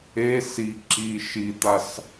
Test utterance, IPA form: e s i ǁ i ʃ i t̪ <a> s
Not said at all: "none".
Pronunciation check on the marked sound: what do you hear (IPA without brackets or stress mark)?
a